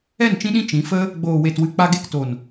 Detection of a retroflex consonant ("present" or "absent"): absent